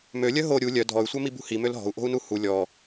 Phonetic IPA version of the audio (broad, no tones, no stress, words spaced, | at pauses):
mølʲœ ɦo ɾʲu lʲœ dʱɔy̯sʷœmi bṳhi mølɦɔ̤u̯ʔo̤u̯ nuhu lʲɔ